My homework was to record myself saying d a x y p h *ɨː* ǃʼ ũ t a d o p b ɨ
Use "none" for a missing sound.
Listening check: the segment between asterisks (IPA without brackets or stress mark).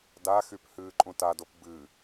ɨː